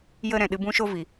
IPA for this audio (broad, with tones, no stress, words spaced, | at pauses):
jə˦ ɾɛ̃˨ɗɨ˧bũ˦ ʃo˦ vi˨